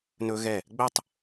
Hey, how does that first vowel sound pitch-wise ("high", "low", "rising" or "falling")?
high